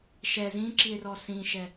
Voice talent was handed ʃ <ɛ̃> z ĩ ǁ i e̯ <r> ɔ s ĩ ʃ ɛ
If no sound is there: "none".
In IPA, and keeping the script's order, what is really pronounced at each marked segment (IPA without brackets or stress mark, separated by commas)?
ɛ, r